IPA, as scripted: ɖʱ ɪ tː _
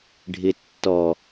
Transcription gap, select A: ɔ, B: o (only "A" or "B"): A